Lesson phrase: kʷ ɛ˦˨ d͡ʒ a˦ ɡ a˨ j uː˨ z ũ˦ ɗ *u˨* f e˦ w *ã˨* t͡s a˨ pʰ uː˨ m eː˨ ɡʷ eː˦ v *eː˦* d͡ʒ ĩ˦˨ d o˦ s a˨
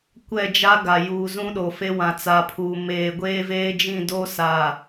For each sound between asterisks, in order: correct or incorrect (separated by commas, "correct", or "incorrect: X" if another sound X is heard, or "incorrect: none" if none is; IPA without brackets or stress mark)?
incorrect: o˨, correct, correct